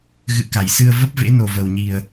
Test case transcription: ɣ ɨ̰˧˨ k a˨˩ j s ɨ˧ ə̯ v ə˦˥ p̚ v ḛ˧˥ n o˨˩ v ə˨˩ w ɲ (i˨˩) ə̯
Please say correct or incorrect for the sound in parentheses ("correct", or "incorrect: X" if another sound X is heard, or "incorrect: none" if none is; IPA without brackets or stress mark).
correct